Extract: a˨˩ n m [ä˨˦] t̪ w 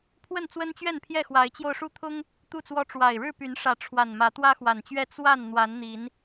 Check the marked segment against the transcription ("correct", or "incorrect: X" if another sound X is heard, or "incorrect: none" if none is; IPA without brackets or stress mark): correct